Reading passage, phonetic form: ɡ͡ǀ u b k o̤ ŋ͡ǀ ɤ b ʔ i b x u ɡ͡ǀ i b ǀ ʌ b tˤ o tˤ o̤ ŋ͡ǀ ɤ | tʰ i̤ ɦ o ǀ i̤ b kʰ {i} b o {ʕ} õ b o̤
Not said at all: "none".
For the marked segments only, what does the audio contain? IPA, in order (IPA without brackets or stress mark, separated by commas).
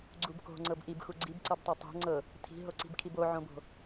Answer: i, ʕ